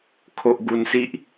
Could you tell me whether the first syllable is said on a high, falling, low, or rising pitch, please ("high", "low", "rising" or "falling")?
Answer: low